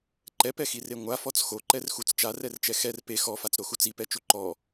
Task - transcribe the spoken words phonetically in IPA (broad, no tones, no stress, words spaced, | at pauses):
ǃɛpɛxire ŋʷafɔt͡s xoǃɛrxut͡s t͡ʃarɛrt͡ʃɛ xɛr pe xɔfat͡sɾoxu t͡sipɛt͡ʃu ǃɔ